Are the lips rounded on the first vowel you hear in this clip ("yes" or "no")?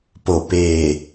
yes